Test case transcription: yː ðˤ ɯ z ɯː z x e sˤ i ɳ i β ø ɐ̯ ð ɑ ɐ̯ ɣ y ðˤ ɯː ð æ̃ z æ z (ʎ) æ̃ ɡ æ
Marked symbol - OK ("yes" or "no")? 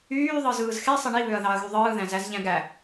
yes